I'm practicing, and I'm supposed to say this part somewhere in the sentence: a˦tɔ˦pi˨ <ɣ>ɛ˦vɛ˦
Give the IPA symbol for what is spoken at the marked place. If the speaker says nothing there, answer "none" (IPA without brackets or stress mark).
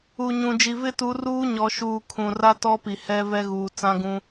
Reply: h